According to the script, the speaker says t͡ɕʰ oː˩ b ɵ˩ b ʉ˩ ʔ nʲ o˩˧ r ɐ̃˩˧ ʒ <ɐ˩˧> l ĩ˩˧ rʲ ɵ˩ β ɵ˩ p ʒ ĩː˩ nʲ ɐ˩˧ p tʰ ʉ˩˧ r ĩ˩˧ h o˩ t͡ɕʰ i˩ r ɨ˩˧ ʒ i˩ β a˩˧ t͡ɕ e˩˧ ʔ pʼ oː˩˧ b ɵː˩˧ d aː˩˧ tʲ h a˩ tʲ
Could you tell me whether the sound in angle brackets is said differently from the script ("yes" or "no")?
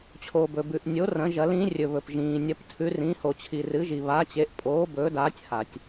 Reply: no